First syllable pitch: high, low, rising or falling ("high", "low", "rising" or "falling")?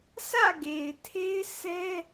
falling